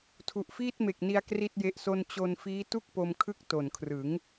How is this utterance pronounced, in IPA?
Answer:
tʰ u˨˩ ʔ f iː˥˩ t̚ m e˨˩ k̚ n i˧ a̯ k r i˥˩ t̚ j e˦˥ ʔ s o˥˩ n t͡ɕ o˧ n f iː˦˥ t u˥˩ k̚ p o˧ m kʰ ɯ˥˩ k̚ t o˨˩ n kʰ r ɯ˩˦ ŋ

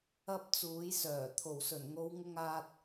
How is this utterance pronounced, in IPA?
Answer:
ɐ˧ p̚ t͡s uː˨˥ j s œː˨˩ t̪ʰ o˨˩ w s ɵ˨˩ n ŋ o˨˧ w ŋ ʊ˧ ŋ aː˧ t̚

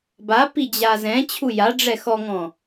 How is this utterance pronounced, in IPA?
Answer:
b a p i d͡ʑ a z ɛ̃ t͡ɕʰ u j a ɖ͡ʐ ɛ x ɔ ŋ ɔ̃

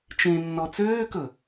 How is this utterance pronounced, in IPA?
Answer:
t͡ʃ ẽ nː ɔ t͡s øː k ɵ

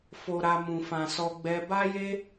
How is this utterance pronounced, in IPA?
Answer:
f o˨ ɾ a˨ m ũ˨ f ã˨ s ɔ˧ ɡ͡b ɛ˧ b a˦ j e˦

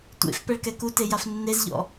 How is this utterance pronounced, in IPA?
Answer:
tʷ ḛ f p ɛ ɭ k ɛ k u t e j a f nː e z ʎ ɔ̰

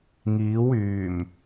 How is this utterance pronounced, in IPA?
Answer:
ŋ iː˨˥ w yː˨˩ m

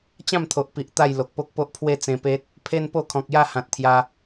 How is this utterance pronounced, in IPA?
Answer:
t͡ɕ ã˥˧ m t̪ʰ o˨ ʔ p i˨ ʔ t̪ a˥˧ j l o˨ k̚ p o˦ k̚ p o˦ ʔ pʰ w e˥˧ t͡s ẽ˧ p e˦ t̚ | pʰ e˦ n p o˥˧ kʰ ɔ̃˨ k̚ j a˥˧ h ã˨ t̚ t̪ʰ j a˧

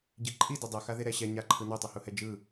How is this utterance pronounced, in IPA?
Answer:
ɟ i ǃʼ i d ɤ dˤ ɤ x a ð e ɾ ɛ ɕ ɛ ɲ a ǃʰ ɯ n o tˤ u h u h ɛ d͡ʒ ɯ

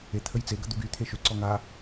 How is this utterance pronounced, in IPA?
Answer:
e t̪ʰ ə j t͡s e ɡ ə d̪ u ɡ y t̪ʰ e ʃ ø ǀ ɔ ŋ a

